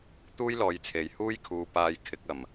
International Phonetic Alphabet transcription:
t̪uː˥jlɔː˨˧jt͡sʰe˨jhuː˥j kʰuː˨paː˨˧j kʰɪ˨˥k̚ɐ˨m

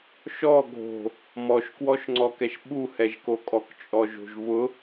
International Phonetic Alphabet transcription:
ʃɔ ɡʱo̤ | mɔʃkwɔʃŋ͡ǀɔkɛʃ ɓuhɛʒko kʼɔkt͡ʃʼɔʒo̤ʒvʊ

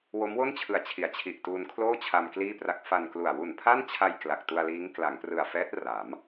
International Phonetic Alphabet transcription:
wo˦˥mwo˥˩nt͡ɕʰɯ˨˩a̯t͡ɕʰi˩˦a̯ t͡ɕʰi˨˩ʔtuː˧nkʰloː˥˩ t͡ɕʰa˧mkliː˥˩pra˦˥k̚ fa˧nklu˨˩a̯ wu˨˩npʰa˥˩nt͡ɕʰa˧j kla˨˩k̚tu˧a̯liː˦˥ŋ kla˩˦ŋprɯ˨˩a̯fɛː˦˥t̚ ra˩˦m

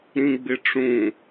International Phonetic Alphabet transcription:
ɾĩɡ͡bɪʈ͡ʂũ

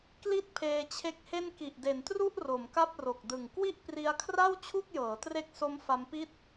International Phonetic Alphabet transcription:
kli˦˥t̚ pʰeː˧t͡ɕʰe˦˥k̚he˥˩n ki˨˩ʔde˩˦ntru˥˩ʔ ro˩˦mka˥˩p̚ro˨˩k̚dɯ˨˩ŋ kwi˥˩ʔpri˧a̯kʰra˥˩w t͡ɕʰu˥˩k̚jɤː˩˦tre˦˥k̚so˦˥m fa˦˥mpi˥˩t̚

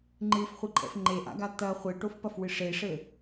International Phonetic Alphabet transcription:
ŋ͡ǃɨfχʷiǃʼɛ̰f ŋ͡ǃeʔa̰ɡa t̪ɐ χʷeʈofpɐfwɨ ʂeʂɘ

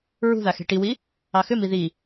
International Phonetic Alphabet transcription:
ɹṳða xe̤ʈiwi | ɑxʏmi ði

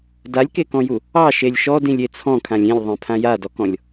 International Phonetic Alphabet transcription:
dalʲkekɔ̃ju | ɑʃelʲ ʃɔdĩlʲe t͡sʰɔ̃kʰãlʲ ĩlʲðˤẽpʰã jadɔkɔ̃lʲ

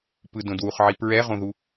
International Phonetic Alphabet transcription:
pɯdõdwuχʕi pɹɛʁõðu

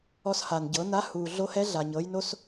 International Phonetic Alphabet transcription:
ɔ˧sha˩n ɟɤ˩˧ na˧˥huː˩ɮo˧˥hɛ˧˥ ɮa˩ɲɤ˩˧jno˧s

